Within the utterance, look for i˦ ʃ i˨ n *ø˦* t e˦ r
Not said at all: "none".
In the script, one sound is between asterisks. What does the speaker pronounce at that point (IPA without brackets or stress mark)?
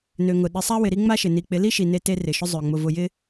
e˦